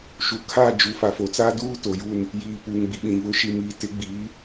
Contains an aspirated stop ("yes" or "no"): yes